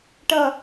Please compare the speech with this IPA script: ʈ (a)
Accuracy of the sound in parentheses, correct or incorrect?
incorrect